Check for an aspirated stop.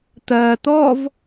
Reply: absent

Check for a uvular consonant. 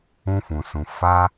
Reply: absent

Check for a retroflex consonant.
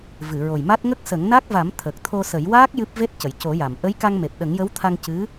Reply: absent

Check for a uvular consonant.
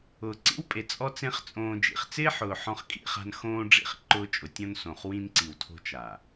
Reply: present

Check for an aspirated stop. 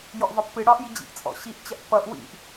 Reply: absent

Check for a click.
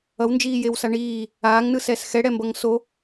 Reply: absent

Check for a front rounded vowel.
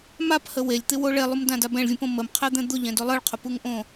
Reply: absent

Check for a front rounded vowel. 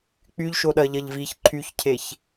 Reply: present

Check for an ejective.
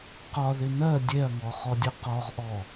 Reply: absent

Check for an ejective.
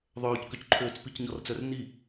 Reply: absent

